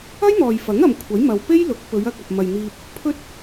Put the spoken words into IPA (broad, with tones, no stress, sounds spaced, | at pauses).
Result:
ɐ˥ j n̪ ɔː˨ j f ɐ˨˥ ŋ ɐ˨ m kʷʰ ɐ˨˥ j m ɐ˨ w p e˥ j l ʊ˨˥ k̚ p ɵ˨˧ ɥ ɐ˧ k̚ ɐ˨ p̚ m ɐ˨ j n̪ iː˧ p̚ | pʰ ɵ˥ t̚